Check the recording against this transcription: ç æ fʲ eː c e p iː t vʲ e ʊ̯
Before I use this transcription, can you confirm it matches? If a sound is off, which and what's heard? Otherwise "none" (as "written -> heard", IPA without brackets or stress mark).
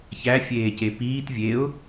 none